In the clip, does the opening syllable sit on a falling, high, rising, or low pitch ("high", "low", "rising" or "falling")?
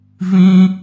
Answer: high